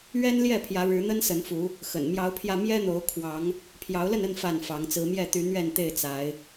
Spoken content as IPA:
ɥ ɛ˦ n l j ɛ˥˨ pʰ j ä˨˦ ɻ ɻ̩˨˦ n̪ ə˦ n s ə˨˦ n f u˨˦ | x ə̰˨˩ n m j ɑ˨˦ ʊ̯ pʰ j ä˧ m j ɛ˦ n̪ o˨˦ ʊ̯ kʰ w ɑ˨˦ ŋ | pʰ j ɑ˨˦ ʊ̯ l ə˥˨ n ə˥˨ n f a˥˨ n f ɑ˨˦ ŋ t͡s ɹ̩˨˦ m j ɛ˥˨ t̪ y˨˦ n̪ ɥ ɛ˥˨ n t̪ e˥˨ ɪ̯ t͡s a˨˦ ɪ̯

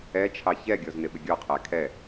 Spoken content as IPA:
ɛ t͡ʃʰ ɑ ç ɛ ɡʲ ɔ z n ɪ ɓ ɪ ɡʲ ɔ qʰ æ kʰ ɛ

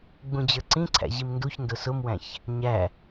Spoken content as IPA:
ɡ͡b ũ d͡ʑ ə˞ ǀ ĩ ǀʰ æ̰ ʑ i m n d u ç n d ʊ s ʊ m w æ̃ ç | ɲ æ

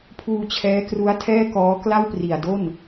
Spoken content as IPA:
pʰ uː˧ t͡ɕʰ ɛː˦˥ k r u˦˥ a̯ tʰ ɛː˥˩ k ɔː˦˥ k l a˥˩ w p r i˨˩ a̯ d o˥˩ n

